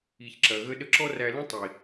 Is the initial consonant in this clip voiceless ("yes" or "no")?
yes